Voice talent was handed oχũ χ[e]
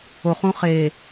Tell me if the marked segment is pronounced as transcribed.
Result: yes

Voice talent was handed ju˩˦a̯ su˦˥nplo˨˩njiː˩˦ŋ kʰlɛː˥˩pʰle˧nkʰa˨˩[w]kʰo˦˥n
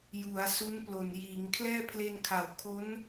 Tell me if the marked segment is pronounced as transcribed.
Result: yes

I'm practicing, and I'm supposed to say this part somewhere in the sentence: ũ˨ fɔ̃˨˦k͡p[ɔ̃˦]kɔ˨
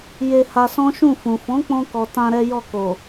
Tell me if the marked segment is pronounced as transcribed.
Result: no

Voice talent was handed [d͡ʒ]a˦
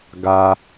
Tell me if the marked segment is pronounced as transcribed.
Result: no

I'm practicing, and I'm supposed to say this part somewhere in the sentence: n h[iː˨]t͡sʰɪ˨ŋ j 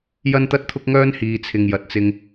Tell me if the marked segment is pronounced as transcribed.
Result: yes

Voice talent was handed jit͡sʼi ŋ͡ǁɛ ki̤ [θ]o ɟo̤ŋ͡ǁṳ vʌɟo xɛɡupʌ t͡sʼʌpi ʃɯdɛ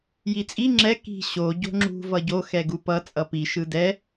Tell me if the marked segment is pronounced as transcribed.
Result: no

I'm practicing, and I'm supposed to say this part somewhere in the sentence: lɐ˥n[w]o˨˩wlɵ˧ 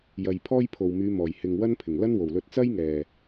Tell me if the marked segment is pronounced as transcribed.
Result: yes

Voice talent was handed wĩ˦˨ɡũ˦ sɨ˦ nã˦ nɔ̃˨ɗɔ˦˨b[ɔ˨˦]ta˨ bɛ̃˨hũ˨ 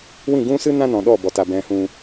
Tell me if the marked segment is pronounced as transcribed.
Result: no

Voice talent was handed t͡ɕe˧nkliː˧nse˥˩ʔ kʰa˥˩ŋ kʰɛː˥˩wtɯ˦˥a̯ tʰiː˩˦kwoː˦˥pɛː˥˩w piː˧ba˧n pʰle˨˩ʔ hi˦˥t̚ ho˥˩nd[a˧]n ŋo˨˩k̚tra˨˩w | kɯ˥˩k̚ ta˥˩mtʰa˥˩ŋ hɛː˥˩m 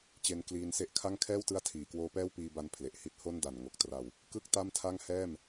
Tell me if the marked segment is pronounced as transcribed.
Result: no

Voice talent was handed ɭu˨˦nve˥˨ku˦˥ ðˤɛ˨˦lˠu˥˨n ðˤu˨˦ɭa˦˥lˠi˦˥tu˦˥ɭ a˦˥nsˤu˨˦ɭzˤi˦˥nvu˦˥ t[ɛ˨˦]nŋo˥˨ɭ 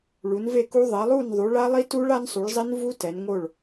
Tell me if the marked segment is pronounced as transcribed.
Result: yes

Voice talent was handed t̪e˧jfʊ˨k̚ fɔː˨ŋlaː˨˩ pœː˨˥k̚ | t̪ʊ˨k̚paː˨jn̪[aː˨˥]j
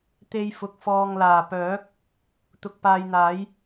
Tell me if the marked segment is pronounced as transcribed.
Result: yes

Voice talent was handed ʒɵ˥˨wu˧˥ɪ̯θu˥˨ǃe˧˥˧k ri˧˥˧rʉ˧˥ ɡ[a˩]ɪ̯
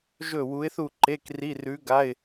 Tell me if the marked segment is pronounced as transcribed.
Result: no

